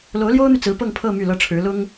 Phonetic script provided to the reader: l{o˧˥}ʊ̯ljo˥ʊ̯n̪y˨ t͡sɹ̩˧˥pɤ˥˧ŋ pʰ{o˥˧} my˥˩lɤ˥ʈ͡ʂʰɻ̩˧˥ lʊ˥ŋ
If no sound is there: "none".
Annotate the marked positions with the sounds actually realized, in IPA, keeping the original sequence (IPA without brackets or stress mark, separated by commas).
o˧˥, ɤ˥˧